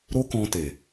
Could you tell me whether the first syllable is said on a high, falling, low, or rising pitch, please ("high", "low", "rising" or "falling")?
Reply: high